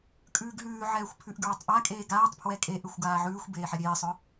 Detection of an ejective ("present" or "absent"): present